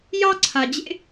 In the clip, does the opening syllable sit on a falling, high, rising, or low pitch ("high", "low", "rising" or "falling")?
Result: high